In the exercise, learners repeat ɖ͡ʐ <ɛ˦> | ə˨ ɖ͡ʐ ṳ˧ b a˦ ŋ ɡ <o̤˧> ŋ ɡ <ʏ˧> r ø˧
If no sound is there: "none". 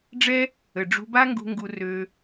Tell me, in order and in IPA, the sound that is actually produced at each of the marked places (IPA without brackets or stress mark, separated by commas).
ɛ˦, ṳ˧, u˧